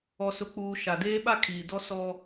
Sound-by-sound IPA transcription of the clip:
ɔ˨ s ʊ˨ k͡p uː˨ ʃ a˨ d eː˦ ɓ a˦ kʰ iː˨ d ɔ˦ s ɔ˦

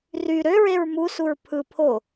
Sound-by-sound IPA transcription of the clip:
r y ɾ ø ɹ e ɹ m u s u ɹ pʰ ɯ pʰ o

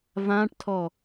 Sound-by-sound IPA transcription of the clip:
v ã ʈ tʰ ɔ

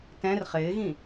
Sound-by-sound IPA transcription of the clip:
t ɛ̃ r χ ɪː ɣ ĩ

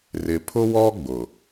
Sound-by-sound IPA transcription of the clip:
r ɪ˨ pʰ ʊ˦ w ɔ˦ ɡ͡b ʊ˨

